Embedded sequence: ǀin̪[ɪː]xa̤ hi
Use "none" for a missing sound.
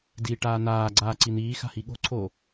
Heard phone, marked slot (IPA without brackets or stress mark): iː